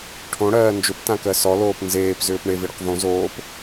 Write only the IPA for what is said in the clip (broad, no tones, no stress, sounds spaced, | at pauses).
ʈʰ õ ɽ ɜː n d͡ʒ ʏ p t ã k ɜ s ɔ l oː p n z eː p z ʏː p ɳ e v i ɽ ʏ q v õ z oː p